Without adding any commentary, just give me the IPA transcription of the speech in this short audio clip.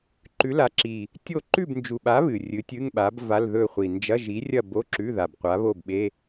ǃ ʉ˨˥ l a˨˥ ǁ i˨˩ | tʲ o˥˨ ǃ ʉ˥˨ b n d͡ʒ u˨˩ ɓ a˨˥ β ɨ˨˩ rʲ ɨ˨˥ tʲ ɨ˧˥˧ ŋ ɓ a˨˥ b v a˧˥˧ l ð ɵ˥˨ χʷ i˨˩ n d͡ʒ ɐ˧˥˧ ʒ i˨˥ rʲ ɐ˥˨ b o˧˥˧ ǁ ʉ˧˥˧ ð a˨˩ b qʷ a˨˥ β o˥˨ b ɓ e˧˥˧

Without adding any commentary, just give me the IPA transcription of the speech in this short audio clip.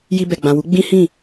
j i˧ b ɛ˨ ɡ͡b ã˨ w u˨˦ ɡ͡b ĩ˦ h ĩ˦˨

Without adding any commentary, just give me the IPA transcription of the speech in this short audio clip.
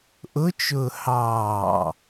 ʔ ʊ t͡ʃ ʊː h ɑː

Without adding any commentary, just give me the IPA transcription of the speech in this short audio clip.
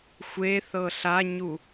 xʷ e θ ɤ ɬ a ɲ u

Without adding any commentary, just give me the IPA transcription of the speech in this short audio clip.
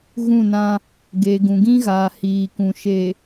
ɣ ũ˦˨ n ã˦ | ɡ eː˨ ɡ ũ˨ ɡ ĩ˦ ɣ aː˨ h iː˨ k ũ˨ ʃ e˨

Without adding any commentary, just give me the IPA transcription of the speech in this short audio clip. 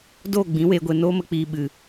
d oː˦˨ ɡ͡b ĩ˨˦ w eː˧ ɡʷ e˨ n oː˦ m ə˧ k͡p iː˨ ɓ ɨ˨

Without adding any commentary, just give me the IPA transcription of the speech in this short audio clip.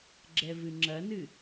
ɡ͡ǁ ɛ v ɨ ŋ͡ǁ ɐ n ɨ

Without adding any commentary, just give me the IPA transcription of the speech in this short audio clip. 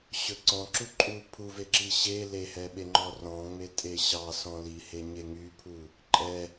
ɕ ɵ ǀ ɔ̃ ǁ u ǃʼ u pʰ u v e ǁ i ɕ e l e h ɛ ɓ e ŋ͡ǃ ɔ r ɔ̃ ŋ͡m e tʼ e ɕ ɑ s ɔ̃ l i h e ɲ e ŋ y pʰ u | ǃʼ ɛ

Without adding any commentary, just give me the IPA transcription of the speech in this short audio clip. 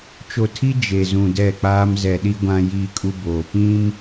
t͡ʃ o˨ tʰ i˦ d͡ʒ e˨ z ũ˨ d ɛ˦˨ k͡p aː˦ m z ɛ˨ ɗ i˦ ɡʷ ã˦ j iː˦ kʼ u˦ b oː˨ p ĩ˦ m

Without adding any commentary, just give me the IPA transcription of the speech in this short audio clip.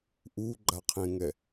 ʔ u ɡ͡ǃ a qʰ ẽ ŋ ɛ

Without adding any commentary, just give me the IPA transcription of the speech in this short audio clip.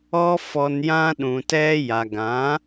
ɔ˦ f ɔ˧ n j ã˦ ɗ ũ˨ t ɛ˧ j a˨ ɡ ã˨˦

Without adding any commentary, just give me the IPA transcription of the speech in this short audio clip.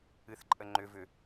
ɨ θ ǃʼ ə ŋ͡ǃ ʏ v ʏ

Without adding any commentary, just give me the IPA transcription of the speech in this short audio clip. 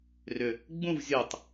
r ʏ | ɡ͡b ũ v zʲ u tˤ

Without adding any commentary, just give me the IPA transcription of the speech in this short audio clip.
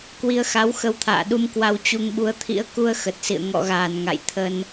k w i˧ ə̯ x a˨˦ w x ə˧ w t̪ʰ a̰ː˧˨ ɗ u˧ m k w a˧ w t͡ɕ u˧ ŋ ɓ u˧ ə̯ t̪ʰ ḭ˧˥ ə̯ k u˧ ə̯ x ə˨˩ t̚ s ḭ˧˨ ə̯ ŋ ɔ̰˧˨ ɣ aː˧˩ n ŋ a̰˧˨ j t̪ʰ ə˧ n

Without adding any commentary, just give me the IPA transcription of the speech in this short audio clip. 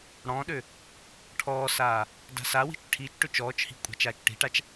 ɽ ɔ̃ː ɗ ø | ʈʰ ɔː s aː | d a̤ s a w i̤ t͡ʃ ʈʰ i t͡ʃ ʈ ø t͡ʃ ɔː t͡ʃ h i̤ kʷʼ a̤ t͡ʃ aː t͡ʃ ʈ i̤ ʈ a t͡ʃ

